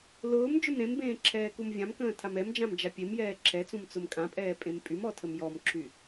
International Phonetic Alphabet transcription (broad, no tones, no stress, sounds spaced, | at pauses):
l ʊː m d͡ʒ ʊ m ɾ ẽ m b ẽː ǁʰ ɛː k u m vʲ ã m k ə̃ː tʰ a m ɛ m d͡ʒ ã m d͡ʒ a pʲ e m j ɛː ǁʰ ɛ t͡s ũ m t͡s ʊ m kʼ ã pʼ ɛː pʼ ẽ m pʼ y m ɔ tʰ ə m j ɔ m ǁʰ y